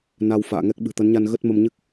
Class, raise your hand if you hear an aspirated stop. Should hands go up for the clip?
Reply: no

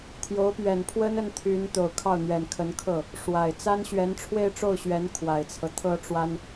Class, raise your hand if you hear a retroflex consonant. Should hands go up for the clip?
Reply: yes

